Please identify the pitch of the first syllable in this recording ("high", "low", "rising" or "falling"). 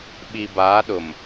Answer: low